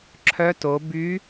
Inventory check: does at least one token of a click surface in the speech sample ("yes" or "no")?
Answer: yes